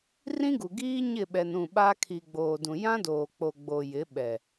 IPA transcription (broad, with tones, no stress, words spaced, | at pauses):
rĩ˦ɡu˨ɡiː˦ ɲɪ˦˨ɓɛ˨n ũ˦˨ɓa˦ kʰi˨ɡ͡boː˨dũ˨ jã˦doː˨k͡po˨ɡ͡bo˨ jɪ˨˦ɓɛ˨